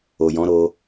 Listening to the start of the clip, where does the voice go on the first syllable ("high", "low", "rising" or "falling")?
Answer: low